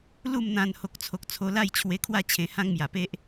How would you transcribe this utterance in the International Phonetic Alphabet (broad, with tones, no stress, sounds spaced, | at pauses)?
l u˥˧ m n̪ ã˧ n h o˨ k̚ t͡sʰ o˨ k̚ t͡sʰ o˧ l a˥˧ j t͡ɕʰ w e˧ kʰ w a˥˧ t͡ɕʰ ẽ˧ h ã˦ ŋ m j a˨˩ p e˦ ʔ